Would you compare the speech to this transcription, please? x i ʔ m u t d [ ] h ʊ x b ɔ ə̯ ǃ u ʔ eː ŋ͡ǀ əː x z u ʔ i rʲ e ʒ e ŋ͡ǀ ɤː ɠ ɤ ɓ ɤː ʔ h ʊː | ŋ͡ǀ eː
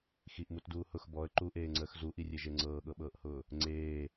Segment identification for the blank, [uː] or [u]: uː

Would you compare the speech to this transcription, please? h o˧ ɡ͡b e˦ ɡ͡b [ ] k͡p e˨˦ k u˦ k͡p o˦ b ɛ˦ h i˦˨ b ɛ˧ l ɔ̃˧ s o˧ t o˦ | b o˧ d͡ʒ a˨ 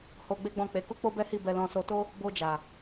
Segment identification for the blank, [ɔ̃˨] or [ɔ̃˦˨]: ɔ̃˦˨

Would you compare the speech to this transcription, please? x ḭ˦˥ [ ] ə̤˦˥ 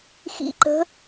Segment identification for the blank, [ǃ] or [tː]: ǃ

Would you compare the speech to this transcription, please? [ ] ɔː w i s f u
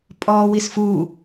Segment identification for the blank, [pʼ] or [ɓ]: pʼ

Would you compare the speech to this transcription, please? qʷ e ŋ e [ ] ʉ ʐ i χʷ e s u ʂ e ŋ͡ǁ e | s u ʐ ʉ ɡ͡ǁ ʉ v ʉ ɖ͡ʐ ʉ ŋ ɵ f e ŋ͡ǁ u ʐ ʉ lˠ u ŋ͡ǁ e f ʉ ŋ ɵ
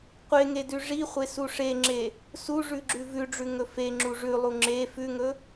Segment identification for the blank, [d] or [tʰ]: d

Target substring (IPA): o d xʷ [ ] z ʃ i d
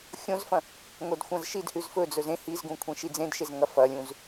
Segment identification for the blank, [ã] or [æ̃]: ã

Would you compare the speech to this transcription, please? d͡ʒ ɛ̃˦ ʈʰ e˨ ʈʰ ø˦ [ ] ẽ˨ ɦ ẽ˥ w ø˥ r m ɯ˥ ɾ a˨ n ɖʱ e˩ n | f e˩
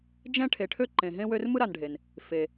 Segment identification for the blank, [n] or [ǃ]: ǃ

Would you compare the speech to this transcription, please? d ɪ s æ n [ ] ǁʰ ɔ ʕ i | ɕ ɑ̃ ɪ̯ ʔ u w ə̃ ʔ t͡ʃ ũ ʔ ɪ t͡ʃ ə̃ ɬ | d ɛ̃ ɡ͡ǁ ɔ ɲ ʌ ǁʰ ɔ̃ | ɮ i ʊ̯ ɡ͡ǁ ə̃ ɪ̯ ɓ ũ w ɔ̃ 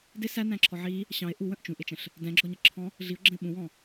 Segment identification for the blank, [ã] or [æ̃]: æ̃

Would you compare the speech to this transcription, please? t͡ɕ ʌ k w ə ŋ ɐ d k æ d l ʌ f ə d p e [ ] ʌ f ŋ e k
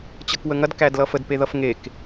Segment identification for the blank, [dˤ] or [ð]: ð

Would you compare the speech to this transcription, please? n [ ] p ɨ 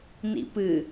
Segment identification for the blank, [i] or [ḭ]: ḭ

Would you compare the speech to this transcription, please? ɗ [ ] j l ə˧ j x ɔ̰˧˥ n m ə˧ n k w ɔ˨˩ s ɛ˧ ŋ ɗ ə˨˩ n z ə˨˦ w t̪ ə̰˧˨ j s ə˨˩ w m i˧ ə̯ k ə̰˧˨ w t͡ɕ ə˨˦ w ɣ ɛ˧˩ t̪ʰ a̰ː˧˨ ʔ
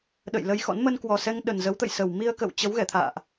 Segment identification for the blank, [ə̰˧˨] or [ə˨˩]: ə̰˧˨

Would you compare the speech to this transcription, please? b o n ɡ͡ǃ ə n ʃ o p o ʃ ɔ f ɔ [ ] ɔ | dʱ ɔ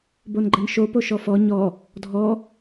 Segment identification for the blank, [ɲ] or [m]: ɲ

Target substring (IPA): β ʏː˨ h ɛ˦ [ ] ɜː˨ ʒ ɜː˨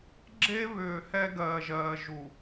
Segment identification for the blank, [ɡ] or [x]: ɡ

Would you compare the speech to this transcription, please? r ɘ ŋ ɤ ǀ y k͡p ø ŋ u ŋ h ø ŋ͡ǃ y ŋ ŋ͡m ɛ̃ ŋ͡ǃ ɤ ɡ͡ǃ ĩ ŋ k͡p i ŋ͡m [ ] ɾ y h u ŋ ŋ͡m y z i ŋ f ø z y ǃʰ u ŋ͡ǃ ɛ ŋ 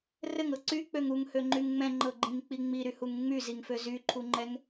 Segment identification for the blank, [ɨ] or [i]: i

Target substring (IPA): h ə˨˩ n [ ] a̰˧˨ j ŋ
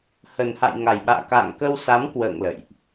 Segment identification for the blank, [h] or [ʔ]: h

